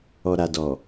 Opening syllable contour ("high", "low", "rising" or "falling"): low